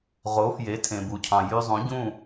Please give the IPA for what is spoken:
ʁ o˩˥ f j e˩˥ tʰ ẽ˩ b u˩ cʰ ɑ̃˩ j y˧ zˤ ũ˩˥ ɟ ũ˥˩

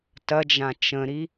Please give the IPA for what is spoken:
t ɐ d͡ʒ ã t͡ʃ ə̃ ɾ i

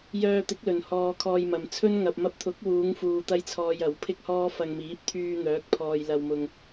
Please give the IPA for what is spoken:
j œː˧ t̪ ɪ˨˥ k̚ l ɵ˨ n h ɔː˧ kʰ ɔː˧ j m ɐ˨ m t͡sʰ ɵ˥ n ŋ ɐ˨ p̚ m ɐ˧ p̚ t̪ʰ ʊ˨˥ k̚ w uː˨˧ ŋ f uː˧ t̪ ɐ˥ j t͡sʰ ɔː˧ j ɐ˨˥ w pʰ ɪ˥ k̚ h ɔː˥ f ɐ˧ ŋ m iː˨˥ p̚ t̪ʰ yː˧ n̪ œː˨˥ k̚ pʰ ɔː˨ j l ɐ˨ w m ʊ˨ ŋ

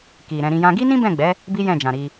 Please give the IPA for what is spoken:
k i˨ ɾ ɛ̃˧ ɾ ĩ˧ j ã˦ ɡ i˦ n ĩ˦ b ɛ̃˦˨ ɡ͡b ɛ˨˦ | b i˦ j ɛ̃˦˨ d͡ʒ ã˨ ɾ i˧

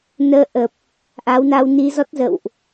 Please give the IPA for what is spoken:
n əː˧ ʔ ə˨˩ p̚ | ʔ a˨˦ w n a˧ w n i˧ z ɔ˦˥ t̚ z ə̰˧˨ w ʔ

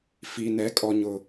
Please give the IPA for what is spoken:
f i˨ n ɛ˨˦ kʼ ɔ˨ ɲ ʊ˨

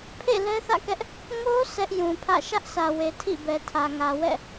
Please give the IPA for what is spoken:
pʰ ḛ˦˨ l ɛ˦ θ ä̰˦˨ k ɛ˦ ʔ | ŋ o˦ sʰ ɛ˦ ʔ j ũ˨ pʰ ä̰˦˨ ʃ ä˦ ʔ sʰ ä˨ w e˨ tʰ ḭ˦˨ b ɛ˨ tʰ ä˨ ŋ ä˨ w ɛ̰˦˨

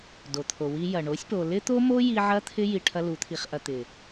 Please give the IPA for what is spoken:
d o˨ t̪ʰ o˨ w i˦ j ɐ˨ ɳ o˨˦ sʲ p o˨ l ɪ˦ t̪ o˦ m o˦ j i˧ ʕ ɐ˦ t̪ʰ ɪ˦ j i˧ ʈʰ ɐ˦ l u˨˦ t̪ʰ i˧ χ ʔ ɐ˧ t̪ ɪ˨

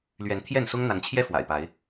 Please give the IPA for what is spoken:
l ɥ ɛ˨˦ n t̪ʰ j ɛ˥˨ n s ʊ˦ ŋ n̪ a˨˦ n t͡ɕʰ j ɛ˦ f w a̰˨˩ ɪ̯ p a˨˦ ɪ̯

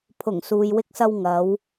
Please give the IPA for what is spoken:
pʰ ʊ˨˩ ŋ s uː˨ j w ɪ˧ k̚ s ɐ˧ w ŋ ɐ˨˧ w

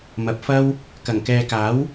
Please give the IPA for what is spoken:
m ɐ˨ p̚ f ɐ˥ w | k ɐ˨˩ ŋ k ɛː˨ k aː˨˥ w

